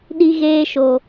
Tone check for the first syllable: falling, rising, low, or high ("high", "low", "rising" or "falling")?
high